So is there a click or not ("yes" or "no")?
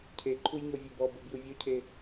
yes